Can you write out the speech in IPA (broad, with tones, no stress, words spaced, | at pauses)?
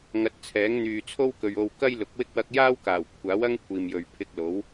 ŋɐ˨˥t̚t͡sʰɛː˨˥ŋn̪yː˨ t͡sʰo˥wkɵ˨ɥo˧w kɐ˥jlʊ˨˥k̚wɪ˥k̚ wɐ˧k̚jaː˥wkaː˨˩w kʷʰaː˨˥w ɐ˥ŋkʷʰiː˨mjɵ˨ɥ pʰɪ˧k̚lo˨˥w